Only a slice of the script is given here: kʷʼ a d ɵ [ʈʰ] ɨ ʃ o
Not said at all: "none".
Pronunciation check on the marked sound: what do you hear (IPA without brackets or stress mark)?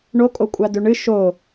ɳ